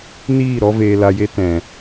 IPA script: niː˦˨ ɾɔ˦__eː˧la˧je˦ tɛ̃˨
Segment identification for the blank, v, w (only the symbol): v